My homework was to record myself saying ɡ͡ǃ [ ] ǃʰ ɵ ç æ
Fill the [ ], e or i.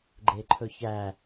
e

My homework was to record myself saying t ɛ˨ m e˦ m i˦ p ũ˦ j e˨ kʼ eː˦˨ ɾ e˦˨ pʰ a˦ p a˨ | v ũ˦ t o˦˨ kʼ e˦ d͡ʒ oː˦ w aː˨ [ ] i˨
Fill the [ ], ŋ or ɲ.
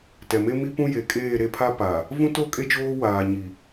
ɲ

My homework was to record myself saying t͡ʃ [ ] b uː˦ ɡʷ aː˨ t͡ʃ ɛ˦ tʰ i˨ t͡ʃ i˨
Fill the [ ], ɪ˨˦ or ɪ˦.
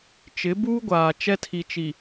ɪ˨˦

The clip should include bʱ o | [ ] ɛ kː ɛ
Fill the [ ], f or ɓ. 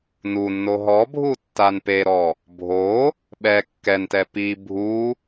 ɓ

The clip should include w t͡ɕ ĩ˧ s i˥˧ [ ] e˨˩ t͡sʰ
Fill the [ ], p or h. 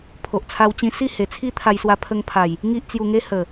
h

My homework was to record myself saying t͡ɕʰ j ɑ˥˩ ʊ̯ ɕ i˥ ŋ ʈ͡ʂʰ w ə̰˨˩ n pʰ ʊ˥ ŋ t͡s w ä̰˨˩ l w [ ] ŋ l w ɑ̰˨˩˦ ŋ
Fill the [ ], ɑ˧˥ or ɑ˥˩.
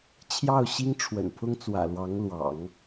ɑ˧˥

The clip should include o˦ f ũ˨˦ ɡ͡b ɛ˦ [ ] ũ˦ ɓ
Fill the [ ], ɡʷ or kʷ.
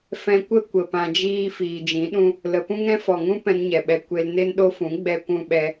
kʷ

